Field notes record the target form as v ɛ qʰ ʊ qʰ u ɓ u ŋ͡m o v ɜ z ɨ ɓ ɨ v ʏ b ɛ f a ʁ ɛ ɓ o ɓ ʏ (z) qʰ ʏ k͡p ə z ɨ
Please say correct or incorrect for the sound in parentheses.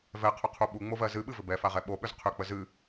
correct